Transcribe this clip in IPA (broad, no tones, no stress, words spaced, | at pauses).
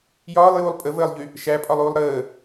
jɒːlˠjuːlˠ pʼəvəːlˠʎy | ʃæpʼɒlˠuːlˠ ɾəː